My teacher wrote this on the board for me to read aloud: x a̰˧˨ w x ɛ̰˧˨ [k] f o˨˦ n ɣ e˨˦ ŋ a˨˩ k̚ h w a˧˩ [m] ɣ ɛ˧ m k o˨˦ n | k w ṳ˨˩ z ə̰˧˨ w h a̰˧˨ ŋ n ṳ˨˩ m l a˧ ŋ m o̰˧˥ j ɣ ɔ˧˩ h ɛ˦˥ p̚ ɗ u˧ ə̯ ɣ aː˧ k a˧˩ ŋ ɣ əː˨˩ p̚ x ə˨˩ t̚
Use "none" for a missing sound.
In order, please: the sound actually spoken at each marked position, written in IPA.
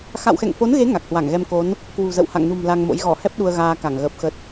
ŋ, ŋ

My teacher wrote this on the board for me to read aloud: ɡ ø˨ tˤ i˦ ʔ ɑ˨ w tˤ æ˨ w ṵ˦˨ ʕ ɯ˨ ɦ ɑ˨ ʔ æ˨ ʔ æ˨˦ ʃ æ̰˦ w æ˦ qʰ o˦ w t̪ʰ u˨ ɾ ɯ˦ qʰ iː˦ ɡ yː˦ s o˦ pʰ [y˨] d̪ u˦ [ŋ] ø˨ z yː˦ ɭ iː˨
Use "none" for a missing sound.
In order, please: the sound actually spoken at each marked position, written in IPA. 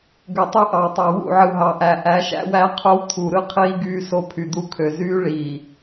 y˨, kʰ

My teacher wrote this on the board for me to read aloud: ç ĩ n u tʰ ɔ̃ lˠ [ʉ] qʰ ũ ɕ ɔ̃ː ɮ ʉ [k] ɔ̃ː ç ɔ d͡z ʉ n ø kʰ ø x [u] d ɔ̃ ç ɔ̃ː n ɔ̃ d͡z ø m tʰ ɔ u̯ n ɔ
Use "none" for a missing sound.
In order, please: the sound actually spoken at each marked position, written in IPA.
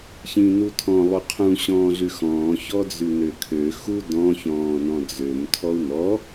u, x, u

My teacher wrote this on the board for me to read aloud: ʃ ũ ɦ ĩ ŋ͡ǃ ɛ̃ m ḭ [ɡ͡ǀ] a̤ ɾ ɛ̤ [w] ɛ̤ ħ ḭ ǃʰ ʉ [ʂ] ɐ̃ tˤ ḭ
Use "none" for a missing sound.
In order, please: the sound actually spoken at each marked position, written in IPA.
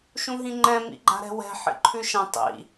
ɡ͡ǃ, w, ʃ

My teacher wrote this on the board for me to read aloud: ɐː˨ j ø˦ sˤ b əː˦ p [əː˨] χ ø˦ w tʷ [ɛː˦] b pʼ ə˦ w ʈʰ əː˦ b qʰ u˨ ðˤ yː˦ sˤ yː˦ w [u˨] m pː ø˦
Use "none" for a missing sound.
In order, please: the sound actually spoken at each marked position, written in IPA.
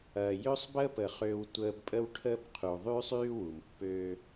ə˨, əː˦, u˨

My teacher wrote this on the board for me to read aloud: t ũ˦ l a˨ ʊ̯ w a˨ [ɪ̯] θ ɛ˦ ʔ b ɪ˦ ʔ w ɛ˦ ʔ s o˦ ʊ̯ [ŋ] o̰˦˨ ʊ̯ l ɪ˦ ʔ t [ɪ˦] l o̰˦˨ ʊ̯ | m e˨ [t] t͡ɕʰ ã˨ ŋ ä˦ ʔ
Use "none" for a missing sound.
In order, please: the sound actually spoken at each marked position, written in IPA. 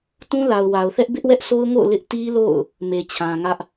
ʊ̯, ŋ, i˦, none

